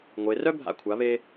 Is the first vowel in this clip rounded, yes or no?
no